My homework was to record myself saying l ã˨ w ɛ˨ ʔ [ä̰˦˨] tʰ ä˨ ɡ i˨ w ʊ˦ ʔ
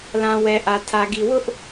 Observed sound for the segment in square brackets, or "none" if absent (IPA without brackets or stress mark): ä˨